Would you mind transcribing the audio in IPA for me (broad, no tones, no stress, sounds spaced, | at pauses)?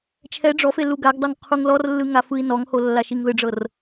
t͡ʃʰ ɛ ɖ͡ʐ ɔ f e l u ɡ a ɡ dˤ ɤ ŋ qʰ u ŋ l ɔ r lː ɯ ŋ a f ɯ i̯ n ɔ ŋ h o lː a ʃ i ŋ ð ɯ ɖ͡ʐ ɤ r